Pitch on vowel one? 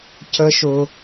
high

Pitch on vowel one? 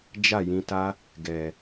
falling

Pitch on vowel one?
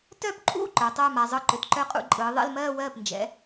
falling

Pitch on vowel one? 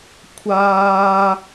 high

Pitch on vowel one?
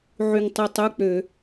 low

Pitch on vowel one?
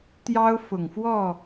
high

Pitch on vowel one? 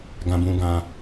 high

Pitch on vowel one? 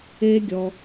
high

